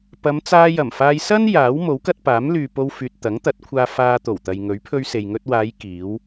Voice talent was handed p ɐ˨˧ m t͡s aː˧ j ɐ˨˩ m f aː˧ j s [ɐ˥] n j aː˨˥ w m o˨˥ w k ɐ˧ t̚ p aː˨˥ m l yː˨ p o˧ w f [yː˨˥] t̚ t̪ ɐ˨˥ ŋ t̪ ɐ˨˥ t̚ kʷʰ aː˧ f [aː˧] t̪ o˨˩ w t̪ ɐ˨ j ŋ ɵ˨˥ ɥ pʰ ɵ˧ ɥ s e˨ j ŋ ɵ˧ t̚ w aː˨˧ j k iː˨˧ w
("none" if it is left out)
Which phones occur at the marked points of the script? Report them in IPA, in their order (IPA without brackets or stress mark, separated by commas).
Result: ɐ˥, yː˨, aː˧